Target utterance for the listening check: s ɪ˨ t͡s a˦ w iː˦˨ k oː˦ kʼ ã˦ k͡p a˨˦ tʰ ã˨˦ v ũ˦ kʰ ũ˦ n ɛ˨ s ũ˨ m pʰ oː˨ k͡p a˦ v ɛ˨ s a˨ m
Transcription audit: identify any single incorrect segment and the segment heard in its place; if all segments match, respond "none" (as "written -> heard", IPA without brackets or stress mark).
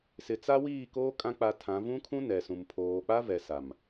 none